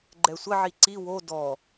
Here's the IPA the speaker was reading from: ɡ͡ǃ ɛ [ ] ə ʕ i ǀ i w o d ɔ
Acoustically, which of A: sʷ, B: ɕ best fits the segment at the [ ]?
A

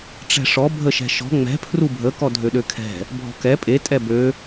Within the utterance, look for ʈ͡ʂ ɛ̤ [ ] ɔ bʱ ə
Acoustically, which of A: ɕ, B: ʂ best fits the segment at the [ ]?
B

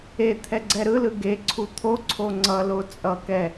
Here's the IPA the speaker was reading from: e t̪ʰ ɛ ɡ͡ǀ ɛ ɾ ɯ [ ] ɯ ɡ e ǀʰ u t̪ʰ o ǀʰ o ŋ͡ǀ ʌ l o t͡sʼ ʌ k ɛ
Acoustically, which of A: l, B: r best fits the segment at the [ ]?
A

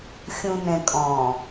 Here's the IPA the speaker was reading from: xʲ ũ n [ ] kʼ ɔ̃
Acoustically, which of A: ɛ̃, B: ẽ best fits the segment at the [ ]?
A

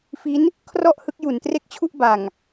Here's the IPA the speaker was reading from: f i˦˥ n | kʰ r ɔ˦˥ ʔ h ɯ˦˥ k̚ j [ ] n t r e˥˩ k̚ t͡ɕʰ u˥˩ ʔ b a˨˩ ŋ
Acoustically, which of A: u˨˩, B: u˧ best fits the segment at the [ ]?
A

